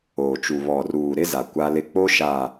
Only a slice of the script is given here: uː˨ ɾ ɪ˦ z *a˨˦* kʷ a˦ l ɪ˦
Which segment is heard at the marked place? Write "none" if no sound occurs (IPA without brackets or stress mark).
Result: a˨